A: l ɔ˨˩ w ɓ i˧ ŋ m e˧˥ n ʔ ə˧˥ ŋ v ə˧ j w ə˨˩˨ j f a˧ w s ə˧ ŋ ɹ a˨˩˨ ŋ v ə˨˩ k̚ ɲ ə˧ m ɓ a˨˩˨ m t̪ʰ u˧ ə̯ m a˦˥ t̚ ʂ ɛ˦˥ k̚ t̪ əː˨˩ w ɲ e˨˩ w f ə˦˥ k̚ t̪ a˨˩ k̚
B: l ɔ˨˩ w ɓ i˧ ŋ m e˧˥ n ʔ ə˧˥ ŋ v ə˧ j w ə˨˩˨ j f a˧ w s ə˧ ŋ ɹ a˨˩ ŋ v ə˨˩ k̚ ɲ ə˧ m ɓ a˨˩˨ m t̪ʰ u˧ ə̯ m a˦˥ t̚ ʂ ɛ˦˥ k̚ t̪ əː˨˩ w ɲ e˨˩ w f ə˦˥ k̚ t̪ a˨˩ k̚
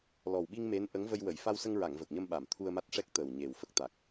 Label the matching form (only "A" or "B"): A